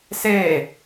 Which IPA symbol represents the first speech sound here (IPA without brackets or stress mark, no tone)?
s